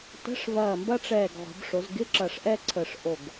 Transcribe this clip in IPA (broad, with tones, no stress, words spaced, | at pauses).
tə̤˧˥˧ʂ vɐː˧˩mbɐ˥ʈ͡ʂɛː˧˩ɡ ʁʷə̤˩˧b ʂo˩˧zɡɪ˧˥˧ ǁɐ˧˩ʂʔɛ˥ ǀʰə˧˩ʂʔo˧˩ɡ